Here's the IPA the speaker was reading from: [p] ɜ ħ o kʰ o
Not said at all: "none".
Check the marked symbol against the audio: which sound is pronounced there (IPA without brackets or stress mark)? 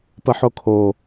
p